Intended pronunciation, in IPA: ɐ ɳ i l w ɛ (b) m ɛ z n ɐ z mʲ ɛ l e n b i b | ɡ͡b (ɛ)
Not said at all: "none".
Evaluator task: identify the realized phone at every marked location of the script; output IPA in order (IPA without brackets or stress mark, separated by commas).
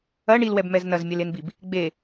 b, e